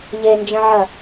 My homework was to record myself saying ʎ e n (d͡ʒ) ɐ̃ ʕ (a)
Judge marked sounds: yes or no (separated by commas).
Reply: yes, no